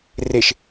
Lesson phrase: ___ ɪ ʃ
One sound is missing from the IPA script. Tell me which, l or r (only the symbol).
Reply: r